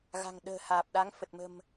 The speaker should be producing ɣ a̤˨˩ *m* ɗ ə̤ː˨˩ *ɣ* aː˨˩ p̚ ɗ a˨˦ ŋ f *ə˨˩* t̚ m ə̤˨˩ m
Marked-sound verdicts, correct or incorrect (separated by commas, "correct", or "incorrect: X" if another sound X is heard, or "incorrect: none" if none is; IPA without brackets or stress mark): incorrect: ŋ, incorrect: h, correct